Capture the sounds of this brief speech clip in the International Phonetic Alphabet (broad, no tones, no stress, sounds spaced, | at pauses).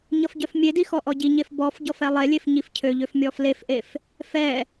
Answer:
ɲ ʌ f ɟ œ f mʲ e d i x ɔ ʔ ɔ ɟ i ɲ e f b ɔ f ɟ ɔ f ɛ lˠ e lʲ e f ɲ i f cʰ ø ʎ ø f mʲ ɔ f l e f ʔ e f | f ɛ